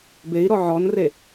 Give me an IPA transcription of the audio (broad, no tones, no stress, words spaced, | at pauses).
bei̯ɾɔ ʕɔnre